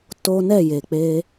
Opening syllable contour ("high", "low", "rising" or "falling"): high